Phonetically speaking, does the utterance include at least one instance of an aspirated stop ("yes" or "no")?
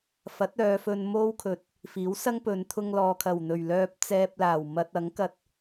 yes